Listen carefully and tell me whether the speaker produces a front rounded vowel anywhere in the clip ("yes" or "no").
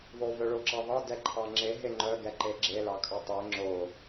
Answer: yes